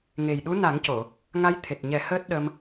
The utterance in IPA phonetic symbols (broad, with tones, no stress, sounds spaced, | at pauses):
ŋ e˨˩ j ɗ u˧˥ n a˨˩˦ ŋ c o˨˩˨ | ŋ a˧˥ j t̪ʰ e˨˩ t̚ ɲ ɛ˨˩˦ h əː˦˥ t̚ ɗ ə˧ m